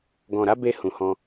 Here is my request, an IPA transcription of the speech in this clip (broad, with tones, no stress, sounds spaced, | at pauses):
ɡ ɔ̃˨ ɾ a˨˦ b e˧ h ũ˨ h ɔ̃˧